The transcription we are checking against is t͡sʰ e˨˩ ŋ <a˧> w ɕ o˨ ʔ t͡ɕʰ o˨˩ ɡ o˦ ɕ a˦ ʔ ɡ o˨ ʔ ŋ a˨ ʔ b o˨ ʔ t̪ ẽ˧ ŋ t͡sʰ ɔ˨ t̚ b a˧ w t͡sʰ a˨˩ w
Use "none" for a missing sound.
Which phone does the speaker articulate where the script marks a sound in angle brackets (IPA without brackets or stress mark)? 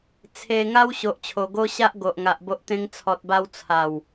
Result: a˧